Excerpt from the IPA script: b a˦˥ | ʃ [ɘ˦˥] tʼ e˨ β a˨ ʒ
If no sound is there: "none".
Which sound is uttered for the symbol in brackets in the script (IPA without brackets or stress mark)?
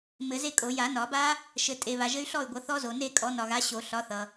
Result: ɘ˨